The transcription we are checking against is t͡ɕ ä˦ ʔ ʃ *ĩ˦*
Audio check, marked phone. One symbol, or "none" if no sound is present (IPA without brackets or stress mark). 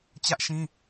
ĩ˦